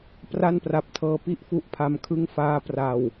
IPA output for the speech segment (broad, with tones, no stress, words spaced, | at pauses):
pra˥˩npra˨˩p̚tʰɤː˧ pi˥˩ʔfu˦˥ʔpʰa˧mkʰɯ˥˩ŋ faː˦˥pra˨˩w